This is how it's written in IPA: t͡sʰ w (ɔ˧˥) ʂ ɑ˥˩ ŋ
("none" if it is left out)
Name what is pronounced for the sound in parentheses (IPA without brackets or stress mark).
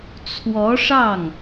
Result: ɔ˧˥